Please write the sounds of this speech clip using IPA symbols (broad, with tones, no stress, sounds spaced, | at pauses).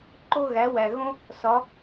ǃ o˥ ɣ æ˩˥ w æ˩ ɣ õ˥ | s ɒ˩˥